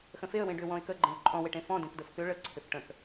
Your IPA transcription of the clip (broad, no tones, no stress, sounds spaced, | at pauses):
x ə̃ f e ə̯ w ẽ ɖ ʏ w ɔ̃ ɪ̯ k ə ɡ͡ǃ ẽ ʊ̯ ǃʼ ɔ̃ w e ʈ ẽ f ɔ̃ d ẽ k d ə f k ʏ ɭ ə ǀʰ ʏ f ʈ ə̃ k